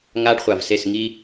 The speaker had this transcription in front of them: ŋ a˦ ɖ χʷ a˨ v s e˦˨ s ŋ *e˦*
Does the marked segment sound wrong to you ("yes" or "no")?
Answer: yes